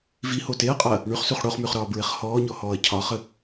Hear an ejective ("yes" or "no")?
yes